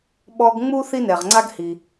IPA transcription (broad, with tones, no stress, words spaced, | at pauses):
ɓɔ˧ɡŋ͡mu˥ θi˥nɛ˩ʁŋ͡ǀa˥ɡhi˩